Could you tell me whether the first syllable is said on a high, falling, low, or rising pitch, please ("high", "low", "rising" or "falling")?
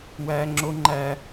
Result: high